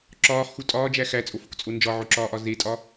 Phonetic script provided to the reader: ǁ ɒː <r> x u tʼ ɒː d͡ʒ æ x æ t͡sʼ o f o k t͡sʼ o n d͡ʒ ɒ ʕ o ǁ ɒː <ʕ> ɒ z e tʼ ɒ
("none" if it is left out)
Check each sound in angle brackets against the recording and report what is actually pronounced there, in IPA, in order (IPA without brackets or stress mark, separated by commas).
χ, ʔ